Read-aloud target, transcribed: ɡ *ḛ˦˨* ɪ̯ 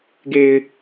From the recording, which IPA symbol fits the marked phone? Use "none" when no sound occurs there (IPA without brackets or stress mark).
e˨